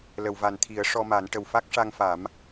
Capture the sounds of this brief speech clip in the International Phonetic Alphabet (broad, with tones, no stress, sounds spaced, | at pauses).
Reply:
l ə˨˩˨ w v a˨˩ n t̪ʰ i˨˩˦ ə̯ ʂ ɔ˧ m a˨˩˦ n ʈ ə˨˩ w f a˦˥ k̚ ʂ a˧ ŋ f a˨˩˦ m